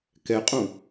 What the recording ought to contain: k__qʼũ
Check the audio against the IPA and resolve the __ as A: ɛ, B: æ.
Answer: A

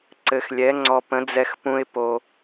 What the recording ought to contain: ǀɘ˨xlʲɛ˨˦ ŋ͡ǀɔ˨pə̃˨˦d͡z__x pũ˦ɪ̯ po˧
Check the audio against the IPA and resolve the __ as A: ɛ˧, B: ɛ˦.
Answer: A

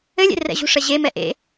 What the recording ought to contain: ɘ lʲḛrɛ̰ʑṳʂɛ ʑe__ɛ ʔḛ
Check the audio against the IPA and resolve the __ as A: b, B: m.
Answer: B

